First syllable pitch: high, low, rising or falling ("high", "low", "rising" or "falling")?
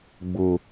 high